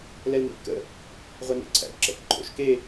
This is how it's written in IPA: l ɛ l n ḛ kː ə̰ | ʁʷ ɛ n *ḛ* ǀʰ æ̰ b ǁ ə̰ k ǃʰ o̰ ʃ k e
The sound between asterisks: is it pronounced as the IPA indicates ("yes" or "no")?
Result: yes